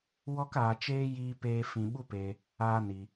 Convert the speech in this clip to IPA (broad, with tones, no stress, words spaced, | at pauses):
wɔ˦k aː˧t͡ʃeː˦ jiː˦peː˦ fĩ˧ɓu˦peː˧ | aː˦ni˧